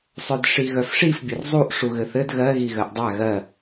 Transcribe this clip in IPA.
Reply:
sˤ œ d ʂ i ɣ œ f ʂ i f bʲ ɘ r zˤ u ʔ ʂ u ɣ ɘ θ ɘ d ɣ ɜ ɣ i ɣ ɜ ʔ dˤ a ɣ ɜ

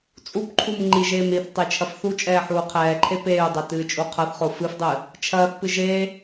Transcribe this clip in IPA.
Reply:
t͡sʼ u p ǃʰ u m ŋ͡ǃ i ʒ eː m ɾ i θ tˤ e t͡ʃʰ ɐ f θ u t͡ʃʼ ɛː ħ uː qʰ ɛː ǃʰ e p eː u̯ dˤ ɛ t ɨː t͡ʃʼ u qʰ ɐ θ χ o f ɨ f dˤ ɨ | t͡ʃʰ ɐː θ p ɨ ʒ e

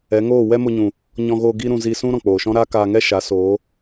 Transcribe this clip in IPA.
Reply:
ɛ˨˦ ŋ oː˦˨ w ɛ˦ m o˧ ɲ ũ˨ | ɲ ɔ̃˧ ɣ oː˧ ɡ i˦ ɾ ũ˧ z i˧ s ũ˦ ɾ ɔ̃˨ k͡p oː˨ ʃ ɔ̃˦ ɾ aː˦ k aː˧ ŋ ɛ˦ ʃ a˨˦ s oː˨˦

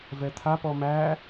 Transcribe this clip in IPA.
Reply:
v ɛ t̪ʰ a p ɔ m æ

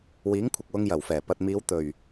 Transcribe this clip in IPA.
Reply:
w iː˨˥ ŋ kʷʰ ɐ˨ k̚ w ʊ˧ ŋ j ɐ˨˩ w f ɛː˨˩ p ɐ˨ t̚ m iː˨˧ w t̪ ɵ˨˩ ɥ

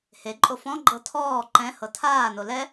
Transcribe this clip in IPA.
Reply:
h e ǃʼ o f ɔ̃ ɡ͡ǃ ɤ tʰ ɔː ǃ ɛ̃ h ɤ tʰ aː n o l ɛ

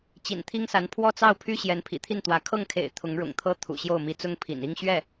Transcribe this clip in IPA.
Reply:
t͡ɕ ḭ˨˩ n t̪ʰ i˥ ŋ s a˧˥ n pʰ w ɔ˥˧ t͡s ɑ˥˩ ʊ̯ pʰ y˥ ɕ j ɛ˧˥ n pʰ ḭ˨˩ t̪ʰ i˥˩ n t̪ w ä˧˥ kʰ ɤ˥˩ ŋ kʰ ḛ˨˩ ɪ̯ t̪ʰ ʊ˧˥ ŋ ɻ ʊ̰˨˩ ŋ t̪ʰ ɤ˥ t̪ʰ ṵ˨˩ ɕ j o˥˩ ʊ̯ m i˧˥ t͡s ʊ˥ ŋ pʰ ḭ˨˩ n i˥˧ ŋ ɕ ɥ ɛ˥˩

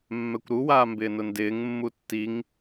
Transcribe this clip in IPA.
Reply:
mː ɛ kʷ ɾ u w aː m b ɪː n ʊ n d ɪː ŋ mː u tː i ŋ

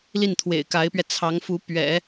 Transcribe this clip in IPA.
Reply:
l i˥˩ n t̪ʰ w ḛ˨˩ ɪ̯ k a˧˥ ɪ̯ p ɥ ɛ˧ t͡sʰ ɑ˧˥ ŋ f u˧˥ p ɥ ɛ̰˨˩˦

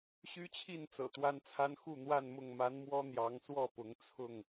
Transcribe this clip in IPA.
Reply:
ɕ y˦ t͡ɕʰ i˥˨ n t͡s ɤ̰˨˩ t̪ w a˦ n t͡sʰ a˦ n x u˥˨ n̪ w a˥˨ n m ʊ˥˨ ŋ m a˨˦ n m w ɔ˦ n̪ j ɑ˨˦ ŋ s w ɔ˥˨ p ʊ˨˦ ŋ t͡sʰ ʊ˥˨ ŋ

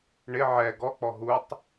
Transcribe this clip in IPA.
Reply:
ɳ ɪ ʕ ɛ ɡ ɔ k͡p ɔ ɦ u tˤ

